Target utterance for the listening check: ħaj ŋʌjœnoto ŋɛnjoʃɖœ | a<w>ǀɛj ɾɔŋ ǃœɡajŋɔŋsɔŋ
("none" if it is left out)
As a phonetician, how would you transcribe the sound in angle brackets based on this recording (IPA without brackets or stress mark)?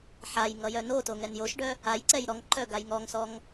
j